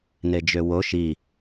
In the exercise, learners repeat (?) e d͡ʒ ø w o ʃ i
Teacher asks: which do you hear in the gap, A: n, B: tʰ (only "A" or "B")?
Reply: A